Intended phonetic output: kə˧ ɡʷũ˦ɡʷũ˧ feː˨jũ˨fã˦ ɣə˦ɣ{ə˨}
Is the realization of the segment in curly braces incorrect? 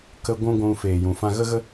yes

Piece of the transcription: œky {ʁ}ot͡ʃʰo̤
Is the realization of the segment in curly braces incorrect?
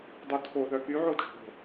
yes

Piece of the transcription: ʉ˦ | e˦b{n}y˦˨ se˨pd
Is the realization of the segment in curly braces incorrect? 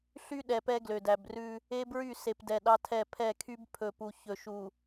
yes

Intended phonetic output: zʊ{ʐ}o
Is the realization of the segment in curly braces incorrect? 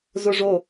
no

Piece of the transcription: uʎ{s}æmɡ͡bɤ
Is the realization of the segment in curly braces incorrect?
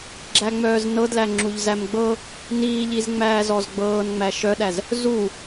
yes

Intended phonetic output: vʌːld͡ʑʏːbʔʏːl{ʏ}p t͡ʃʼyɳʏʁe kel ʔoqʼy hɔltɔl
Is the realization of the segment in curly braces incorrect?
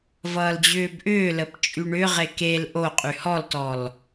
yes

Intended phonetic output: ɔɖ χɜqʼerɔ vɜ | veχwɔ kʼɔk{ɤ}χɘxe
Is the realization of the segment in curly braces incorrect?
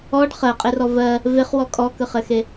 yes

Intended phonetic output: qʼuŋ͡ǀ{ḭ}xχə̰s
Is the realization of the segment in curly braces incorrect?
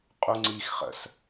yes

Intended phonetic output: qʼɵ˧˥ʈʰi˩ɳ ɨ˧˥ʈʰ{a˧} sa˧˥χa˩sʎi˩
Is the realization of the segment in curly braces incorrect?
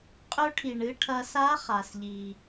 yes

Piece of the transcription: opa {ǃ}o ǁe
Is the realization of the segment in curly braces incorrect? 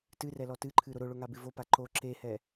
no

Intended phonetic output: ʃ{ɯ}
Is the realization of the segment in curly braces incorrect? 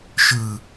no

